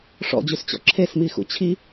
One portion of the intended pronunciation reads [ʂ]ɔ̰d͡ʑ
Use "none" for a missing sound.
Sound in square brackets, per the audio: ʂ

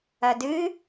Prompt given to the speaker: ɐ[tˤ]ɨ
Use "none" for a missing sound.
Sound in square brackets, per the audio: d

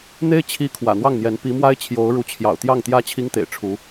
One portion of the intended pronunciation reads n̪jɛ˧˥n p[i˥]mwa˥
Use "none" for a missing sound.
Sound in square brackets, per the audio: i˧˥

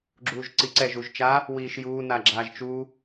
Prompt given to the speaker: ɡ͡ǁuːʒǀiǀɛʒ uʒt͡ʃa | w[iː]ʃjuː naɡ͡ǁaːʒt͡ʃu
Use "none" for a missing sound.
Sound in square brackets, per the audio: iː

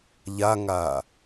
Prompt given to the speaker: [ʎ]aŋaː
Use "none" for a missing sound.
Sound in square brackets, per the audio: ʎ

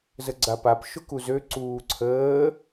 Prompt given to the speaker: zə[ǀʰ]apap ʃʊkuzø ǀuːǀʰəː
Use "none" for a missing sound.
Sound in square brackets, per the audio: ɡ͡ǀ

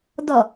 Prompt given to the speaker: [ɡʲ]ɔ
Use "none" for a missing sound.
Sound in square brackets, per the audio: d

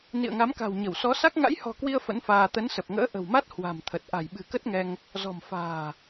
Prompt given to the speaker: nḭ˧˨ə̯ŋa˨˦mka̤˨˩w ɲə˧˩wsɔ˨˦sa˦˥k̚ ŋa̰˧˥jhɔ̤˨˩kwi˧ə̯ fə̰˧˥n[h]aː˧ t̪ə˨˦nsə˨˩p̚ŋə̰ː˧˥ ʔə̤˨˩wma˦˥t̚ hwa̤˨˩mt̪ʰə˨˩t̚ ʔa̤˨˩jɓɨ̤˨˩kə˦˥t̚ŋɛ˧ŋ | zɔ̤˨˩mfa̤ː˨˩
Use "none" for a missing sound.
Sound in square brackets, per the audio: f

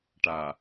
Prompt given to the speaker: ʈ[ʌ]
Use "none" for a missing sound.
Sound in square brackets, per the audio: a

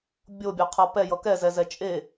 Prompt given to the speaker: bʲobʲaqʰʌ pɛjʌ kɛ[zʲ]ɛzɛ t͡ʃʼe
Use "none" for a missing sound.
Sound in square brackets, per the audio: z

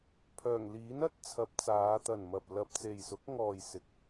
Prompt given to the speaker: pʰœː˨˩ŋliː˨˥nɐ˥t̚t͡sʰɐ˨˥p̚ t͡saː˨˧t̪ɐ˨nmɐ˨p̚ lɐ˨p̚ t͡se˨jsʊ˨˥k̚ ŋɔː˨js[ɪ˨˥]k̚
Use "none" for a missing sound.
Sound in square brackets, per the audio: ɪ˨˥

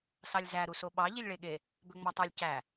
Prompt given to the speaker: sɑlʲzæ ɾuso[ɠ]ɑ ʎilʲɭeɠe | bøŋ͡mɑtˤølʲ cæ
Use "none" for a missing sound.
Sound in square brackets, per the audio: ɓ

